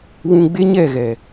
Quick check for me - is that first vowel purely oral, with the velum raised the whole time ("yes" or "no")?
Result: no